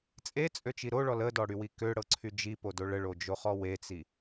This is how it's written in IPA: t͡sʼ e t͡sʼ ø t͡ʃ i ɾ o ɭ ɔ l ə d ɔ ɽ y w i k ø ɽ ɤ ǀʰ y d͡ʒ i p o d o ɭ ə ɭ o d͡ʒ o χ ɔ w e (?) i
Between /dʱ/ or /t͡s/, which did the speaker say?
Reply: t͡s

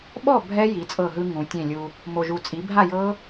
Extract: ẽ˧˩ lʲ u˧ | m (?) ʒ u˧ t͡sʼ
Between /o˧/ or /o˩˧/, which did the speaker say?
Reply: o˧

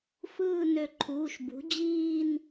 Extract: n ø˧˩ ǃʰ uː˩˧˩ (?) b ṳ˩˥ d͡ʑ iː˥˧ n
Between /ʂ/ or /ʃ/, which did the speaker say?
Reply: ʃ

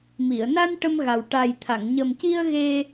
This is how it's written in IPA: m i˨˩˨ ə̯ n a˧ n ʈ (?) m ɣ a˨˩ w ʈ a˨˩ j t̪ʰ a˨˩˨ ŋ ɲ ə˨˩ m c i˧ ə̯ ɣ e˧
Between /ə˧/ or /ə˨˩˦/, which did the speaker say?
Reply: ə˧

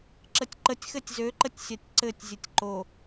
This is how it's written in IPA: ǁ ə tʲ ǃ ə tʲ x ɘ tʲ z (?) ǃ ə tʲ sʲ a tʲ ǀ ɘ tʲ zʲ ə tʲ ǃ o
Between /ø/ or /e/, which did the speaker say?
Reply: ø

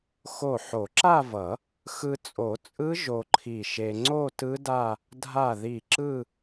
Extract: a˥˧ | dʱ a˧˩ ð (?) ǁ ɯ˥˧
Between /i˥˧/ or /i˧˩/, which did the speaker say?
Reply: i˧˩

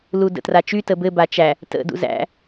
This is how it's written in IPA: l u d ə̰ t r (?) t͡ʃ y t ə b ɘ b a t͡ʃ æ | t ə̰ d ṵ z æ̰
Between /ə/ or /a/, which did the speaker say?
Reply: a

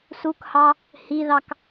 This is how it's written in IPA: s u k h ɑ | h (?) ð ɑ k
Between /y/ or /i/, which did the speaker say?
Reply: i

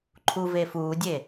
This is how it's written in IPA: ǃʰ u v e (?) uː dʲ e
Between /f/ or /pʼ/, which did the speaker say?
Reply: f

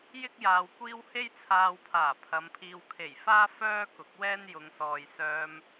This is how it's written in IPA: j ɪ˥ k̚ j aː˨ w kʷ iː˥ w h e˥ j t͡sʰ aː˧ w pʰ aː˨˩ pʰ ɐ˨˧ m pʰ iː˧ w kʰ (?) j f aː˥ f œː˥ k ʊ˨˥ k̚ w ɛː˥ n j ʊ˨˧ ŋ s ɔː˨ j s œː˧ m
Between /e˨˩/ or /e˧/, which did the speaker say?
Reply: e˨˩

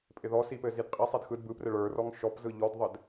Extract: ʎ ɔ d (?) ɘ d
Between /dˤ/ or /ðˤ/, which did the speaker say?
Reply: ðˤ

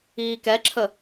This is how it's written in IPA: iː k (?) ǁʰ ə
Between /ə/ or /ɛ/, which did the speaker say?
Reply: ɛ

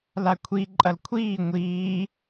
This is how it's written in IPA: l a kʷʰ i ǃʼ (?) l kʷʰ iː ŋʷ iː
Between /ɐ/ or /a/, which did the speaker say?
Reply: ɐ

